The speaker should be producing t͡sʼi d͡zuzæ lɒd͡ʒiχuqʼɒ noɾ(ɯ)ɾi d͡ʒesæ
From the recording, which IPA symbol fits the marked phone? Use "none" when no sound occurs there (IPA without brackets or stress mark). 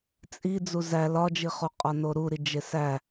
u